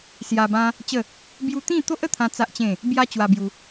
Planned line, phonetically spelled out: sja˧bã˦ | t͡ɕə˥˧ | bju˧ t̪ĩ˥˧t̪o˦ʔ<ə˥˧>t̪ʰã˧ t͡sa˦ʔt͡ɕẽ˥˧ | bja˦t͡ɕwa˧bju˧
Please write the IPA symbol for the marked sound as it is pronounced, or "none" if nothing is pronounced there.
ə˥˧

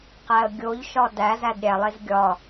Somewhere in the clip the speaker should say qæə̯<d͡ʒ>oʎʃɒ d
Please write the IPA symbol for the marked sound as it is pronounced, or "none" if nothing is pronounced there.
ɡʲ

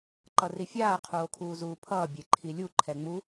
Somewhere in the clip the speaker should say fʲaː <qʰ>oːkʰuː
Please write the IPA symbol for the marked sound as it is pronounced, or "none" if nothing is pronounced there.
qʰ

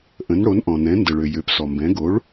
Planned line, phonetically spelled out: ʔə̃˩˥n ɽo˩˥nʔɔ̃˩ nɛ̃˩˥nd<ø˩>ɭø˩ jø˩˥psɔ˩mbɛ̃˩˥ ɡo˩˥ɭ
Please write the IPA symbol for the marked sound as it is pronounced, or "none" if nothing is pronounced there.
ə˩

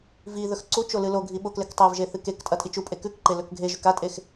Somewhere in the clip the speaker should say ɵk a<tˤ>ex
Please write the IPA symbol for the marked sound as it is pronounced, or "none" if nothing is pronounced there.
tʼ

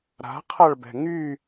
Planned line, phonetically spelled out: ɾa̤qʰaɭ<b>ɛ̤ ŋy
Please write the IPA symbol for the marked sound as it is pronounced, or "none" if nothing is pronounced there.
b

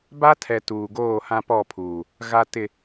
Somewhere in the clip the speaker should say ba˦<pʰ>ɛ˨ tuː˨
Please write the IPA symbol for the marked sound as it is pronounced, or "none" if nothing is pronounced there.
tʰ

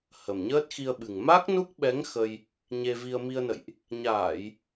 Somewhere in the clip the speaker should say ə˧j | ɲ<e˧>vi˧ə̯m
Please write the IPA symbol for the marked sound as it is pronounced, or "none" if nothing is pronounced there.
e˧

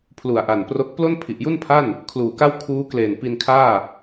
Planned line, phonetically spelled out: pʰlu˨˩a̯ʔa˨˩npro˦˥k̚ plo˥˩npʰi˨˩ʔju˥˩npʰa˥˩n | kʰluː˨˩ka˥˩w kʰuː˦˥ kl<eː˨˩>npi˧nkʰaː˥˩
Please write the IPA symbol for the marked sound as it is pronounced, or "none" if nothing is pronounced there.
eː˨˩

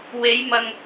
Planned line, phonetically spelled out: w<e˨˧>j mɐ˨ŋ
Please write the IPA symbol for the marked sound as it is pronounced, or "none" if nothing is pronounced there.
e˨˧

